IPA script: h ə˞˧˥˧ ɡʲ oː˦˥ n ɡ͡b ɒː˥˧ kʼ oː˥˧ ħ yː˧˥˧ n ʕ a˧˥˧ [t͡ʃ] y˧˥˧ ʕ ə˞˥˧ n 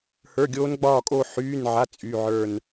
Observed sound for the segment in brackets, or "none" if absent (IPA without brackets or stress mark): t͡sʼ